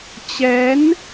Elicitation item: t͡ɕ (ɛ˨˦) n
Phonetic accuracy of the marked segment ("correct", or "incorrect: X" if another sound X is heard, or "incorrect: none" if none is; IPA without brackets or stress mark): correct